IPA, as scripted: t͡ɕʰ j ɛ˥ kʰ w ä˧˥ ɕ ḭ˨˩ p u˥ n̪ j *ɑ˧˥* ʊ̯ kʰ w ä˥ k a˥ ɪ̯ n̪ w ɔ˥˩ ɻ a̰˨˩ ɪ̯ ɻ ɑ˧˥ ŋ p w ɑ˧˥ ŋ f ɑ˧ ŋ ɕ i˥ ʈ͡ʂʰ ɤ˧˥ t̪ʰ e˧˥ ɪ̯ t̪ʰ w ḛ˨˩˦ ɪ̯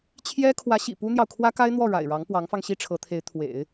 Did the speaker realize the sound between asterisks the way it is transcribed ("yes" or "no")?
no